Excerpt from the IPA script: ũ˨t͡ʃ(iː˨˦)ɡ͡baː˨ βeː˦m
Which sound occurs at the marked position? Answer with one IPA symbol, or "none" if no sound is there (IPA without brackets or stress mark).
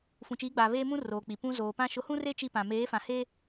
iː˨˦